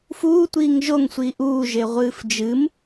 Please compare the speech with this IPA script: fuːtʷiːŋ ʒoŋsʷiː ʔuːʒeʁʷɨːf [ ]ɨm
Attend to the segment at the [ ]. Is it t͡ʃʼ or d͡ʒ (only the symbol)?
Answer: d͡ʒ